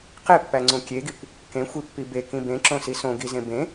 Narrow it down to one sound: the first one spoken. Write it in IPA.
q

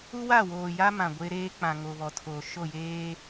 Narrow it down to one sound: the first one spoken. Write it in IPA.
u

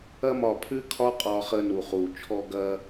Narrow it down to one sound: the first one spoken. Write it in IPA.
ɐ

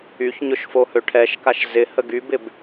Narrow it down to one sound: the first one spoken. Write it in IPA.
y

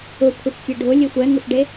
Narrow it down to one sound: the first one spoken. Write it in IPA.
ʊ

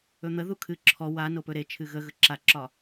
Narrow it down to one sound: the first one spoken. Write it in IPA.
ɵ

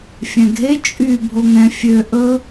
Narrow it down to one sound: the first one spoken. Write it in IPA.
fʲ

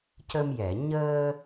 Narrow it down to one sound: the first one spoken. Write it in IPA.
c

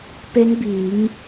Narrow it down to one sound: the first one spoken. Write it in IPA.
p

